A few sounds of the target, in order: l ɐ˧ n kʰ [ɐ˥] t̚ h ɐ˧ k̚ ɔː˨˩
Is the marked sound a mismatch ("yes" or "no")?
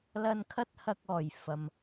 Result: no